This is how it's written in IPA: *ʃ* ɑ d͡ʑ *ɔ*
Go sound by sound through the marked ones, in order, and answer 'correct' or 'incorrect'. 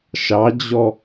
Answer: correct, correct

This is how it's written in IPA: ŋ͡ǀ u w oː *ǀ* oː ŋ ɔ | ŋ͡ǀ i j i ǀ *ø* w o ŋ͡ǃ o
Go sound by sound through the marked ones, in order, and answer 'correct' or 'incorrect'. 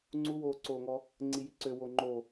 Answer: correct, correct

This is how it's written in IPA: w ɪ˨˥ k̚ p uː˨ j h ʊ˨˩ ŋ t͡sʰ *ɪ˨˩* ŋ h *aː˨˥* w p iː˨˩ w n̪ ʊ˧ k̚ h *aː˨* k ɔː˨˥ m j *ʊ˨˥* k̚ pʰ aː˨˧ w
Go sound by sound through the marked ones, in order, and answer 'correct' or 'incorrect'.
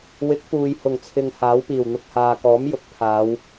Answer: incorrect: ɪ˨, correct, correct, correct

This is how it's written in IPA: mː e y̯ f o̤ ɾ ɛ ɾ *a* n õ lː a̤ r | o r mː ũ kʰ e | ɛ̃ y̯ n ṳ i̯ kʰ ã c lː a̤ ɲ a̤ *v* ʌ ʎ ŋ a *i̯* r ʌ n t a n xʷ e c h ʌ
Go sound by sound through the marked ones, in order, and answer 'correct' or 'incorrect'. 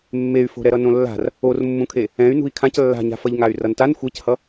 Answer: incorrect: ʌ, incorrect: f, incorrect: y̯

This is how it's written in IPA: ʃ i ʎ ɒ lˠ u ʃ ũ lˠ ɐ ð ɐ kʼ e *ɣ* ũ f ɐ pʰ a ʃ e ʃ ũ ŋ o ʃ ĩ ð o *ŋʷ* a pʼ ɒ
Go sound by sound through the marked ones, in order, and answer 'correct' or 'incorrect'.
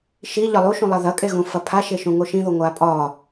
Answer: correct, correct

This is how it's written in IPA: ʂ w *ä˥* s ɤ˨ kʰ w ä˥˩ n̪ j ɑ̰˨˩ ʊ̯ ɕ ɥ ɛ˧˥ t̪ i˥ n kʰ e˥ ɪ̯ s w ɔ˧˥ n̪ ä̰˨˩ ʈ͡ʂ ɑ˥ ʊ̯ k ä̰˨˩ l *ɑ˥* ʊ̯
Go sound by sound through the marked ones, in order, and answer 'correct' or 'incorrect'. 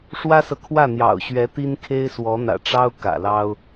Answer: correct, correct

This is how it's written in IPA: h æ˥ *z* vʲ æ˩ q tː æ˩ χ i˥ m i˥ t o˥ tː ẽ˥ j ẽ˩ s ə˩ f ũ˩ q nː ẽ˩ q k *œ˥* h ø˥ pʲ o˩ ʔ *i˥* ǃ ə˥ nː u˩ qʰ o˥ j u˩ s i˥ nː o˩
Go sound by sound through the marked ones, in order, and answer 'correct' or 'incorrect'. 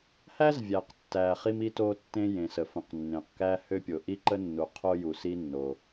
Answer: correct, incorrect: æ˥, correct

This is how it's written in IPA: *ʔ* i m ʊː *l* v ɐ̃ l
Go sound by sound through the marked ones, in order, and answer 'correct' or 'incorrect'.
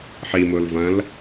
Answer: incorrect: ħ, correct

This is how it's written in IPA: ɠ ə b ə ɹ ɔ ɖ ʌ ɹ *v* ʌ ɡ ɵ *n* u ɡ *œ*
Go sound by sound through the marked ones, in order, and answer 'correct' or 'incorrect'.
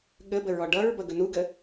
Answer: incorrect: b, correct, incorrect: ə

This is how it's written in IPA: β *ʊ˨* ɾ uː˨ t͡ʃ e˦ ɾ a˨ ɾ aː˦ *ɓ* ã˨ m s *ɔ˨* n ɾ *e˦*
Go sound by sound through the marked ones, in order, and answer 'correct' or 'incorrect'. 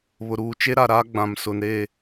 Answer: correct, incorrect: ɡ͡b, incorrect: ʊ˨, incorrect: e˦˨

